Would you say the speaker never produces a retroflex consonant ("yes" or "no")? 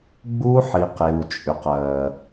yes